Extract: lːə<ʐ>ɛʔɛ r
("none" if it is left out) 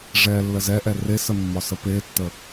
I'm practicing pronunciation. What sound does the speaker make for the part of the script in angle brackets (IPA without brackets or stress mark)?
z